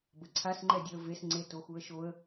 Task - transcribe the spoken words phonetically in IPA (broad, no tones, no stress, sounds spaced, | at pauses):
b ə ǀʰ a s ŋ͡ǃ ɛ dʲ œ ə̯ v e s ŋ͡ǀ e t o x u ə̯ ʃ o ə̯